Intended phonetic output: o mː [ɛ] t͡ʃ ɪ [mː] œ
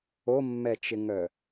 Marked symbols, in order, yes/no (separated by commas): yes, no